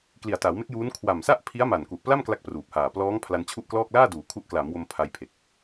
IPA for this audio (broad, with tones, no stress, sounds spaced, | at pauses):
k l i˨˩ a̯ t a˩˦ w m e˦˥ k̚ j uː˦˥ n kʰ w a˨˩ m s a˥˩ ʔ pʰ i˦˥ a̯ m a˨˩ n k u˨˩ ʔ p l a˥˩ m k l a˥˩ k̚ p r uː˨˩ p̚ h aː˨˩ p l ɔː˦˥ ŋ pʰ l a˧ n t͡ɕʰ u˥˩ ʔ k l ɔː˥˩ k̚ l aː˥˩ d uː˩˦ kʰ u˦˥ ʔ k l aː˩˦ m w o˧ m pʰ a˧ j pʰ e˨˩ k̚